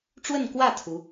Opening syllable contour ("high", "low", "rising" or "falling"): falling